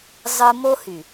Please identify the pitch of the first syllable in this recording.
high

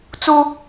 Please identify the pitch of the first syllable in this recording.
high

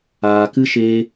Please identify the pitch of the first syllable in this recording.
low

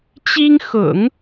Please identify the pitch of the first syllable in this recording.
high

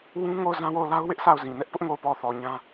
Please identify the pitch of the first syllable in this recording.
high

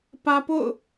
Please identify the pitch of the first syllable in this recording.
high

